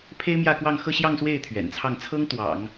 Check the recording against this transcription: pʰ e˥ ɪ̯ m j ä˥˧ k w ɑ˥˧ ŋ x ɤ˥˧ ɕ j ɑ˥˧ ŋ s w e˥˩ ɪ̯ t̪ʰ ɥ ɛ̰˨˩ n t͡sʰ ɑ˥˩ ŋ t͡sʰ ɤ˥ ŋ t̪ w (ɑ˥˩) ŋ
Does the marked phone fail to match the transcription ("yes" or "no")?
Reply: yes